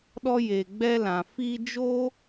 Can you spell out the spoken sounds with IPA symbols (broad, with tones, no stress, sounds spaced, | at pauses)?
ɗ ɔ˧ j e˨ ɡ͡b ɛ˧ l ã˨ f i˧ d͡ʒ oː˦